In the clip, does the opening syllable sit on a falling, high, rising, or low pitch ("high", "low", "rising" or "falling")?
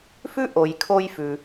high